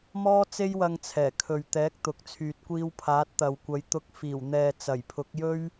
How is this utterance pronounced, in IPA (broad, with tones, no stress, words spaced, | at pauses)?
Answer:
mɔː˥t͡se˥jwɐ˧ŋ t͡sʰɛː˨˩kʰɵ˨ɥt̪ɛː˨˥k̚t̪ʊ˨k̚ t͡sʰyː˨t̚kʷiː˧wpʰaː˨˥t̚ t̪ɐ˨wkʷɐ˨˧jt̪ʊ˧k̚ fiː˨˩wn̪ɛː˨ t͡sɐ˨˩jpʰʊ˨˥k̚jɵ˥ɥ